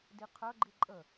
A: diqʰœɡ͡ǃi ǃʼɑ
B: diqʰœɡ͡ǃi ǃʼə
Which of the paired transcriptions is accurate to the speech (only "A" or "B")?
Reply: B